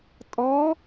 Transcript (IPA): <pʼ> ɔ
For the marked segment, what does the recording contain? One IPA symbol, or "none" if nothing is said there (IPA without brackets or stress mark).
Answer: tʼ